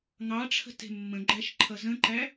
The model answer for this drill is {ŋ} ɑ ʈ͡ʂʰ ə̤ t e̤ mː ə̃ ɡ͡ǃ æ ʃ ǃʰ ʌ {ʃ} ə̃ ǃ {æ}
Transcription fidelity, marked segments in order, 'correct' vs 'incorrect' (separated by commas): correct, incorrect, correct